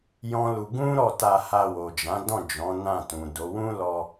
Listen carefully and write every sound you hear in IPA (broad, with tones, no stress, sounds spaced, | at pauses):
j ɔ̃˦ l u˧ ɡ ũ˦ ɾ ɔ˦˨ t a˧ h a˧ w o˨ d͡ʒ ã˨˦ d ɔ̃˦˨ d͡ʒ ɔ̃˨˦ n ã˦˨ t ũ˨ d o˨˦ w ũ˦ l ɔ˧